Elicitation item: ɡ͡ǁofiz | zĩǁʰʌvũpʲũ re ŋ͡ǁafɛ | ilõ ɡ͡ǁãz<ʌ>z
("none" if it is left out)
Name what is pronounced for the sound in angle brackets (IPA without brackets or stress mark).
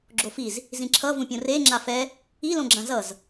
ʌ